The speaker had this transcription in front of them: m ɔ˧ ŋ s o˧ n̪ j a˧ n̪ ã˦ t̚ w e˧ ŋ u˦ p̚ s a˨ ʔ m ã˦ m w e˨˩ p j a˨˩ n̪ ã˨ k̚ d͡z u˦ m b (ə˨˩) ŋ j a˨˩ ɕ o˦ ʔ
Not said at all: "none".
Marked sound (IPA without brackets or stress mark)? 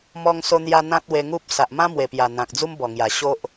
ɔ˨˩